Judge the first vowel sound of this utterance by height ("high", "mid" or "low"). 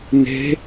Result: mid